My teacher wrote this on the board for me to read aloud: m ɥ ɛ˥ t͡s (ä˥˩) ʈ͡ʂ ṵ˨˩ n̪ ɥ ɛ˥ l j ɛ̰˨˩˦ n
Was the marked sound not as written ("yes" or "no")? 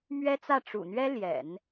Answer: no